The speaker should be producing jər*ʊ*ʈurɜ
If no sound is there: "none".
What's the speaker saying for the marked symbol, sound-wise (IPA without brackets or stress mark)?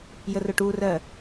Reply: ʊ